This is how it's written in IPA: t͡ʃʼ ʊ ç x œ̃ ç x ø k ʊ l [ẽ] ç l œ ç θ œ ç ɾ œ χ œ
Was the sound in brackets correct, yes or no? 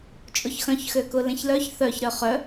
yes